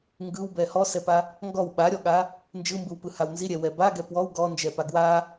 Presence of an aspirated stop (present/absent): absent